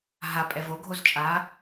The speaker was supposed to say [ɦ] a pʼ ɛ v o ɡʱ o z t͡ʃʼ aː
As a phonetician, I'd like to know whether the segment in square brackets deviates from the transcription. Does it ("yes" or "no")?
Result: no